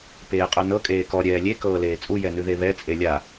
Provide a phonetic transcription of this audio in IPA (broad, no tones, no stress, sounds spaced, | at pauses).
p eː qʼ œ n ɤ kʼ eː k ɔ ɾʲ ɛː lʲ e k ɤː l eː t͡sʼ u j ɛ n ʉ ð e β ɛ t͡sʼ e lʲ a